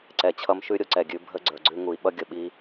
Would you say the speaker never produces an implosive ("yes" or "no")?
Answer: no